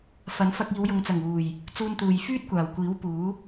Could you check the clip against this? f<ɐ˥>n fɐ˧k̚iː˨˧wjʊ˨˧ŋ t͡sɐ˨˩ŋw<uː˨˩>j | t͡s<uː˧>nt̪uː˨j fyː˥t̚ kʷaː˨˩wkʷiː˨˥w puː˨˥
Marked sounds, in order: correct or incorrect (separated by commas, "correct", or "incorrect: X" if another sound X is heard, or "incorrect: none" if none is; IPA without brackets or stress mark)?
incorrect: ɐ˨˥, correct, correct